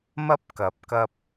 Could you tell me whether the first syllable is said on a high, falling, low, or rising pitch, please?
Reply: high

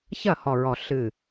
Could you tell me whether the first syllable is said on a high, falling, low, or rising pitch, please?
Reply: falling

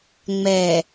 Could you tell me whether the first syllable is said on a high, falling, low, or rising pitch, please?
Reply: low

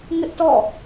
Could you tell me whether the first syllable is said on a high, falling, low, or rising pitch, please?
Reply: high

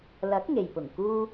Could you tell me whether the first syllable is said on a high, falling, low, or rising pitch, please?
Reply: rising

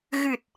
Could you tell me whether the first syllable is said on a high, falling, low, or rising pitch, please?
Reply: low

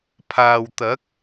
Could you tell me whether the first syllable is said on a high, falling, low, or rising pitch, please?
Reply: low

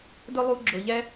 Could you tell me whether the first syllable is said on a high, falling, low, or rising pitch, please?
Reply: high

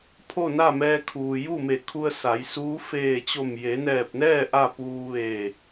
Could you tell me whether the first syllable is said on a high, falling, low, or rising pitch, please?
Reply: falling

